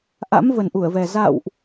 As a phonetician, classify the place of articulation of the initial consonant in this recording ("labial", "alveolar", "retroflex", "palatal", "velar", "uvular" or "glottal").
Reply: glottal